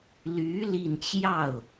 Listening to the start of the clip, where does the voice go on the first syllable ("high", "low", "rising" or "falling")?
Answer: rising